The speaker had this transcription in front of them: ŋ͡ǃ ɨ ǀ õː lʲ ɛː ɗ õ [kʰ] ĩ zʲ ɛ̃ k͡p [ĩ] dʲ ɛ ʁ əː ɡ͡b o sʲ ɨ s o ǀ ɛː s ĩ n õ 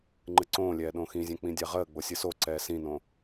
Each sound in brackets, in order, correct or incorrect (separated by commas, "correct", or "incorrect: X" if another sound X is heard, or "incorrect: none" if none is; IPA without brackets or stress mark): incorrect: x, correct